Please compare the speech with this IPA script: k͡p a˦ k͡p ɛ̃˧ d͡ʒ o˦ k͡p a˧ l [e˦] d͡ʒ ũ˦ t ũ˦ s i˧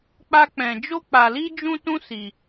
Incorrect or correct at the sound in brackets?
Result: incorrect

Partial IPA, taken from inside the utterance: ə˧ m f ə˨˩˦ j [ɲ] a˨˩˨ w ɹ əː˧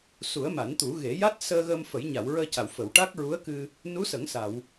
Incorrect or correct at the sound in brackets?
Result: correct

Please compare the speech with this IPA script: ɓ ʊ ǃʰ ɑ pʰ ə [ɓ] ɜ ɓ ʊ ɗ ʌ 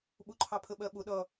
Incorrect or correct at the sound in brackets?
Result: correct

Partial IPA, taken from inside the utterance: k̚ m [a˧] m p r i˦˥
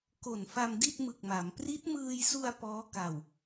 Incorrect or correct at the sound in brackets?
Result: incorrect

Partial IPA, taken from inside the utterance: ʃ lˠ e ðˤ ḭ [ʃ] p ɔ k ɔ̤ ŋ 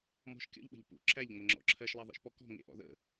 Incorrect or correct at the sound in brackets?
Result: correct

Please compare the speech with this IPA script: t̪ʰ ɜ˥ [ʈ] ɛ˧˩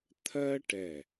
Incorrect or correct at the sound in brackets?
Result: correct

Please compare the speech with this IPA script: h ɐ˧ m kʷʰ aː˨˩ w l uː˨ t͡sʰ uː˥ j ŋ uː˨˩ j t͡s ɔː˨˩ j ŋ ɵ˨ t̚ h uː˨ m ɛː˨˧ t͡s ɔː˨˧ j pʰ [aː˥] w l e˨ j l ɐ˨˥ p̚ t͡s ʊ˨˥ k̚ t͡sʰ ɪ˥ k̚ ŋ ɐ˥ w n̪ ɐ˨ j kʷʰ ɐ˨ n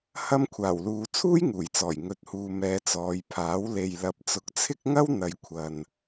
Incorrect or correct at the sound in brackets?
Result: incorrect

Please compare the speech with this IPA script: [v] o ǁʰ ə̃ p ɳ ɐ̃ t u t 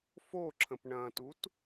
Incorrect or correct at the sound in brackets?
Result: incorrect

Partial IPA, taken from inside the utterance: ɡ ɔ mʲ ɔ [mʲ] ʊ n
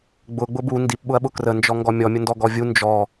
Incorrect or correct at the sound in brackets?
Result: correct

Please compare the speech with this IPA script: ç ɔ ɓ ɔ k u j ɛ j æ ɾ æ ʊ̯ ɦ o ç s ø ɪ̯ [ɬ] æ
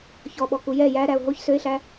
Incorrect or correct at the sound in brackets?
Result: correct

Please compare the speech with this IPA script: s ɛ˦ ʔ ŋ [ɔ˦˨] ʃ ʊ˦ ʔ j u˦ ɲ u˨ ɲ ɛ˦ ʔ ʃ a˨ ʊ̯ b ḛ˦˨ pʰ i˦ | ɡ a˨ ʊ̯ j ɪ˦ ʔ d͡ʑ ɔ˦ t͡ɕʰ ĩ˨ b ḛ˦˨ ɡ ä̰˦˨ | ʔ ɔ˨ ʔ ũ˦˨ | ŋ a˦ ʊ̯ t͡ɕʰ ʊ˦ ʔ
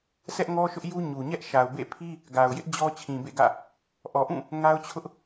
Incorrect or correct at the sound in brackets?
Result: incorrect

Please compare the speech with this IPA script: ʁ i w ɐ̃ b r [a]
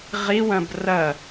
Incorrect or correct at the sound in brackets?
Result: incorrect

